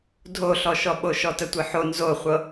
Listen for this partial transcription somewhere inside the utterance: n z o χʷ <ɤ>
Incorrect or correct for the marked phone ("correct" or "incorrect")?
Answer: correct